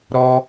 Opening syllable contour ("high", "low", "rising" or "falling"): high